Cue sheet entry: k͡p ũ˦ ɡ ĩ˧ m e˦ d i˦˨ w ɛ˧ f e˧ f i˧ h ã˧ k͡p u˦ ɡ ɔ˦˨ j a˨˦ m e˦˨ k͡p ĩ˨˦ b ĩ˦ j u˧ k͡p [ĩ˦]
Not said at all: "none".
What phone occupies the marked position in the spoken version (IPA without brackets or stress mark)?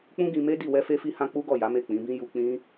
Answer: ĩ˦